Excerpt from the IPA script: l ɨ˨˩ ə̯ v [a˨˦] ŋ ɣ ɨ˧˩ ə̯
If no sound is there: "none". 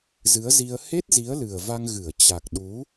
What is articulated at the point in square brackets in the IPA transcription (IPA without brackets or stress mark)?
a˧